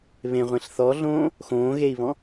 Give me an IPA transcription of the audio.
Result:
β ẽ ʁʷ ẽ ɬ θ ɔ ɮ õː | x õː ɣ e i̯ β ɔ̃

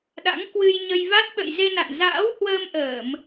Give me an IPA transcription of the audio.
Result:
ɗ a̰˧˥ ŋ k w ɨ˧ j ɲ ə˧ j v a˦˥ t̚ ɓ ə̰˧˨ j z e˧ n a̰˧˨ n z a̰ː˧˥ w h w əː˧ m ʔ əː˧˩˨ m

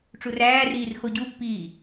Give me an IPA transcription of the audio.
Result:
ʈ͡ʂ u r æː r iː r x o ɟ u pː iː

